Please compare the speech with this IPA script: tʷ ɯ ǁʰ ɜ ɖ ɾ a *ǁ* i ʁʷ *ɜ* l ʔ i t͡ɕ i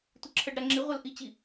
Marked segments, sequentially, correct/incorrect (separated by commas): incorrect, correct